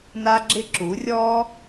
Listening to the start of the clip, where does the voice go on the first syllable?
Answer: high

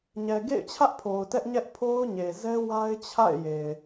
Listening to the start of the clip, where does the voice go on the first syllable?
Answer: low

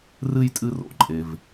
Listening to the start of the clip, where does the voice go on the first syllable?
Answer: high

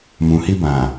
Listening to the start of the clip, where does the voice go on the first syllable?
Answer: low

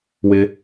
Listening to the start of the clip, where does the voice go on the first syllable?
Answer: low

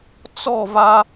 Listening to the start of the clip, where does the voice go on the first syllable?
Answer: falling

